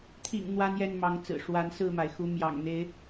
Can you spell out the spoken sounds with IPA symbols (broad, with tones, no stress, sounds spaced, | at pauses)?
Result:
t̪ʰ ḭ˨˩ ŋ n̪ w a˦ n j ɛ˥˨ n m ɑ˨˦ ŋ t͡s ɹ̩˨˩ ʂ w a˨˦ n s ɹ̩˥˨ m a˩ ɪ̯ x u˨˦ m j ɑ̰˨˩ ŋ n̪ e˨˦ ɪ̯